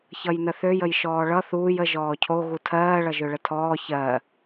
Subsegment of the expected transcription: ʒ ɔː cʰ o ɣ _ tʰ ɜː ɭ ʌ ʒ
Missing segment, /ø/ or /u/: u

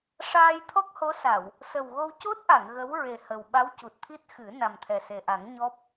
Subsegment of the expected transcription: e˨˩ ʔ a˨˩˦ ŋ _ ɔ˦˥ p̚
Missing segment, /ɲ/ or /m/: ɲ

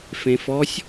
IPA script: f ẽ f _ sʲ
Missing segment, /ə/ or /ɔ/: ɔ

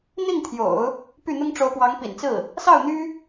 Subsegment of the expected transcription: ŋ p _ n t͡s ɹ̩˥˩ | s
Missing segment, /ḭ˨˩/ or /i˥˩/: ḭ˨˩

